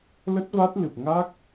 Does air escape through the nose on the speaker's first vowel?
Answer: no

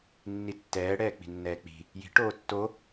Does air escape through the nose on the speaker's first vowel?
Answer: no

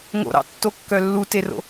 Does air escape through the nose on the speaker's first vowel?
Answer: no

